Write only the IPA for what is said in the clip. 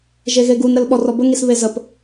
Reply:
ʒ e ɣ e ɡ u n ɾ ə l ɓ ɔ r ɔ b ə ŋ i s β e z ə p

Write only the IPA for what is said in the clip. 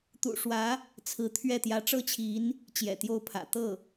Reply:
t̪ ṵ˨˩ ʂ w ä˧˥ | t͡sʰ ɹ̩˧˥ t̪ʰ ɥ ɛ˥˩ t̪ j ä˧˥ ʈ͡ʂ ɤ˥ t͡ɕʰ i˧˥ n | t͡ɕ j ɛ̰˨˩ t̪ j o˥˩ ʊ̯ pʰ ä̰˨˩ t̪ ɤ˥˩

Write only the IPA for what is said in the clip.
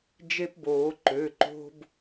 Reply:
d͡ʒ e˦ p b oː˩˧ ǃ ø˩˧˩ ǃ o̤˦ b

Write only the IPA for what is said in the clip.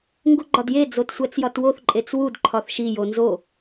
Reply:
ŋ ɡ u ɡ͡ǃ ɒ d j e d͡z o t sʷ æ t͡s j ɒ t w o θ ǃʼ e t͡s w u d ǃʰ ɒ θ ʃ i j o n z o

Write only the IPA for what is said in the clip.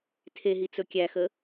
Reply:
tʰ e ɦ i t͡s ɵ kʲ æ x ə

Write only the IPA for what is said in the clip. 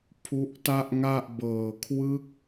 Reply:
pʰ u˦˥ ʔ t a˥˩ ʔ ŋ a˥˩ ʔ b ɤː˨˩ kʰ w ɯ˦˥ k̚

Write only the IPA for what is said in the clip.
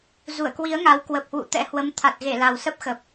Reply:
z u˧˩ ə̯ k w i˨˦ ə̯ ŋ a˨˦ w k w ə˨˩ p̚ h w ṵ˧˨ t̪ ɛ̰˧˥ h w ə˨˦ m t̪ʰ a˨˩ t̚ ɣ e˧˩ l a˨˩ w s ə˦˥ p̚ x ə˨˩ p̚

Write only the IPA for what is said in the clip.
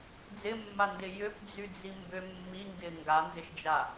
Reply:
d͡z ɪ mː a n d ɪ j ʏ p d͡z y d͡z i m b ʏ mː i ŋ ɡ ɪ ŋ ɡ a n z ɪ ʃ d͡ʒ a

